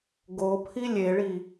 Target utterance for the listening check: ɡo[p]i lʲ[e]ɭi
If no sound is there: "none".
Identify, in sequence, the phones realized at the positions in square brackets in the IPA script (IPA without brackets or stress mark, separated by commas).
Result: pʰ, e